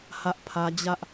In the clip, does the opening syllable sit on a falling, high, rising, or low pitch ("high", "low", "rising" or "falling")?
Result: high